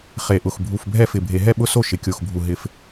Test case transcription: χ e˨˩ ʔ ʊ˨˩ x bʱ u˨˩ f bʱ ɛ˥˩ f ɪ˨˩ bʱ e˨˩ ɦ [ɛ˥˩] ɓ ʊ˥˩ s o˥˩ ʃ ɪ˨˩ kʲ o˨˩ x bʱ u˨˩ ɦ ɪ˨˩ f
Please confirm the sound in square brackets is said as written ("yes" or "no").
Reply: yes